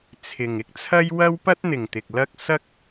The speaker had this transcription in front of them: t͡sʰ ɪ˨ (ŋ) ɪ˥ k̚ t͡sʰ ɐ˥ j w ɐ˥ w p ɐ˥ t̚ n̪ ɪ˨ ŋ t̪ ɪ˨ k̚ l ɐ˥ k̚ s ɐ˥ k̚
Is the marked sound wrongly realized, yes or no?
no